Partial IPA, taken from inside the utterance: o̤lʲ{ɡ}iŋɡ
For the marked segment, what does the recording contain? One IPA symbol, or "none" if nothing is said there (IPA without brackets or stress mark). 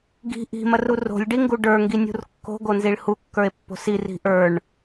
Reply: ɖ